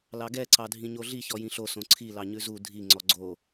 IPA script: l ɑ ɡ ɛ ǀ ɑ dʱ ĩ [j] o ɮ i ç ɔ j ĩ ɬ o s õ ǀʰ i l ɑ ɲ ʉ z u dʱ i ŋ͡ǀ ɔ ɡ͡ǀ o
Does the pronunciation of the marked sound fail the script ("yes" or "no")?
yes